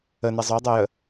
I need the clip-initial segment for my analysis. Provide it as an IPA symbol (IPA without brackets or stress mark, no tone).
ə